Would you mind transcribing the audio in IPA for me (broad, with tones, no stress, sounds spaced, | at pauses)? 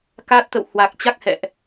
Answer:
k aː˦˥ t̚ t̪ ə̰˧˨ w h w a˨˩ k̚ t͡ɕ a˦˥ k̚ h ɛ̰˧˨ ʔ